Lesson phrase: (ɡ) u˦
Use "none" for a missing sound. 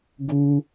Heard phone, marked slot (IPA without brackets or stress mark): ɡ